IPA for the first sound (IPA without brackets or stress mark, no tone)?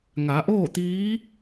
ŋ